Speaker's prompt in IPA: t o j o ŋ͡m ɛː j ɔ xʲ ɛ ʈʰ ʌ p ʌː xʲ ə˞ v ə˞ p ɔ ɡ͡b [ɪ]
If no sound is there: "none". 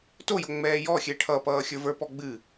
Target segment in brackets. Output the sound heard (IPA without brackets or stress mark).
ɨ